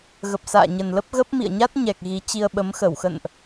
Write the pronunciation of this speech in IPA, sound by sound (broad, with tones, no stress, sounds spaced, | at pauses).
ɣ ə˨˩ p̚ s a̰ː˧˨ ɲ ə˨˩ n l ə˦˥ p̚ ɣ ə˦˥ p̚ m ḭ˧˨ ə̯ ɲ a˦˥ t̚ ɲ ɛ˨˩ k̚ ɣ i˨˦ t͡ɕ i˧ ə̯ ɓ ə˨˦ m x ə˧˩ w x ə̰˧˨ n ʔ